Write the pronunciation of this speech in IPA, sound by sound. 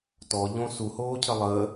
tɔʎõ suhoːcʰə lˠəː

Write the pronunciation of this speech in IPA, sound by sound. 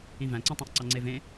ĩvæ̃ǀĩ tˤæ̃ʔǀɑŋ͡ǀevẽ

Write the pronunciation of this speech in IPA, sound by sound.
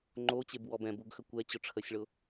ŋ͡ǃot͡ɕebwɔb ɛ̃buɡxə kʷɛt͡ɕʊ ʈ͡ʂʰəsʲɭʊ

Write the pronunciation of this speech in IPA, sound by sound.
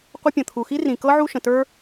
qʷə˥pʲə̃˩t̪ʰu˩ xi˥rĩ˩kɤ˥ ʕu˥ ʃə̃˩tə˞˥

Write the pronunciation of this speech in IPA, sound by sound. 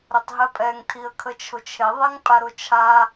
ɾətˤɦɛpʼɛŋ tʰiə̯kʰət͡ʃʰʊt͡ʃʰe ðˤɛŋpʼaɾʊt͡ʃʰa

